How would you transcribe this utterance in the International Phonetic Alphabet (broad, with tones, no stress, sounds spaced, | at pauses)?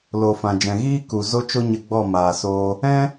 l o˨ f ã˨ d͡ʒ ɛ̃˨ ɣ iː˦ k u˨ z o˦ t͡ʃ o˦ ɲ ə˧ ɡ͡b ɔ˦˨ m aː˨ s oː˧ | ɛ̃˦